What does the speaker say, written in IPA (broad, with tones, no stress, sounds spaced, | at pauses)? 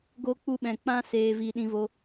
ɡ o˧ k͡p u˧ ɓ ɛ̃˨ k͡p ã˦ s eː˨ v i˨ ɗ ĩ˧ v o˧